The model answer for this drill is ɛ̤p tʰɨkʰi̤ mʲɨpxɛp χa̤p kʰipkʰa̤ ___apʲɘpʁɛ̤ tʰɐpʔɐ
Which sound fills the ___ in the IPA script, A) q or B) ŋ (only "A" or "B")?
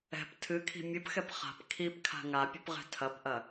B